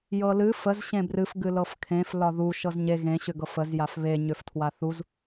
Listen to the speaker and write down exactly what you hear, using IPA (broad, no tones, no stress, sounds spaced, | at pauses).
j ɤ l ɨ f ə z ɕ ẽ b r ɨ f ɡ ɨ l ɤ f kʰ ẽ f l ɒ ð u ʃ ɤ z ɲ e ɣ ẽ ɕ ʏ ɡ ɤ f ə z j a f β e ɲ ʏ f tʰ w a θ u z